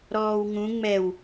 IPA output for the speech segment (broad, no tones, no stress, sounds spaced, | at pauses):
ɾ ɔː w ŋ ũ ŋ͡m ɛ w